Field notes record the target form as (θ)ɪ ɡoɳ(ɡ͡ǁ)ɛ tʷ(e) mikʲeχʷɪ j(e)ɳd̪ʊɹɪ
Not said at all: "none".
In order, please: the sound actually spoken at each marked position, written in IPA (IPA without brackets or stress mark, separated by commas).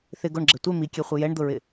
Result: θ, ɡ͡ǁ, e, ɛ